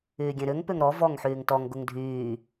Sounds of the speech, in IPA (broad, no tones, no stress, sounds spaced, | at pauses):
yː ɡʲ ẽ ɾ ʏ ŋ p ʏ ŋ ɾ ɔ v ɔ ŋ ħ yː ŋ t ɔ ŋ ɡ ʊ ŋ dʱ yː